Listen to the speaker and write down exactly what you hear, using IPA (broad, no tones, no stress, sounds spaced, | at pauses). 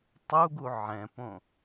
tˤ u ɡ u ʕ ɛ̃ p õ